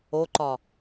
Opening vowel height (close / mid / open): mid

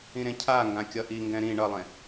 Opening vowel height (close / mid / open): close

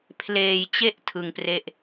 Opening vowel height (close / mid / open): mid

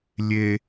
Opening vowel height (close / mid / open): mid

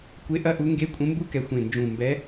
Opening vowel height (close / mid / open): mid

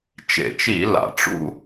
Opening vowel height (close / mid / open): mid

